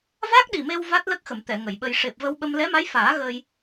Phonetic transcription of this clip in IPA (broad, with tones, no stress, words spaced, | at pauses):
va˦˥k̚ɗi˨˩me˧w va˦˥t̚lə˦˥k̚xə˨˩˨m t̪ɛ˨˩˨ŋə˨˩˨jɓə˧j ʂe˨˩p̚və˧wɓə˧m lɛ˧˥ma˧˥j faː˨˩˦ ɣə˧j